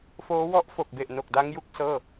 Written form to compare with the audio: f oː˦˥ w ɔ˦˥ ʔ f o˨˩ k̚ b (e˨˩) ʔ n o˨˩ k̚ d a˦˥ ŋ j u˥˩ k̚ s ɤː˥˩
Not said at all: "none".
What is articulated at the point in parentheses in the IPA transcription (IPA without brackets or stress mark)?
e˨˩